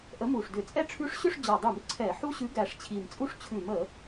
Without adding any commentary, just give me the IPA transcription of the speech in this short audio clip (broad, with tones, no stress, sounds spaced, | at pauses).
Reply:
ʔ ə˨˥ m u˨˩ ʂ d ʏ˧˩˧ t͡sʼ ɛ˥˧ ʈ͡ʂʰ ʉ˦˥ ʂ ɕ ʏ˥˧ ʂ d͡ʑ ɔ˨˩ dˤ u˧˩˧ m ǀʰ ɛ˧˩˧ ħ u˦˥ ɕ ʉ˨˥ ɡ æ˨˩ ʂ t͡ɕʰ i˨˩ m t͡sʼ u˥˧ ʂ t͡ɕʰ ʉ˧˩˧ m ə˧˩˧